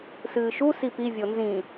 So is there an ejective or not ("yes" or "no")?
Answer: no